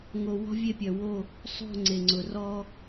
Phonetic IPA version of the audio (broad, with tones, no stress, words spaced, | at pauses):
ŋo˨ wɔ̤˦vʲe˦˨pʲœ˨wo˦˨ | sˤo̤˦˨ ŋ͡ǀe˨ŋ͡ǀʊ˨ rɔ˦